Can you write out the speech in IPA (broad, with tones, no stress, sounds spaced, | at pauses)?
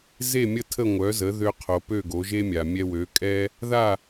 z e˥˩ mʲ ə˥˩ tʰ ə˥˩ ŋʷ œ˩˥ z ə˩˥ ð ø˧ qʰ o˩ p ø˥˩ ɡ o˩˥ ʒ e˥ mʲ a˩ mʲ ɛ˧ w ø˩˥ kʼ ɛ˥ | ð a˥˩